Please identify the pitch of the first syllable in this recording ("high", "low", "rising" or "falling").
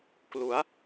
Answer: rising